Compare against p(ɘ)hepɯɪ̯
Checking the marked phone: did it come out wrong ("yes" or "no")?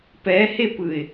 yes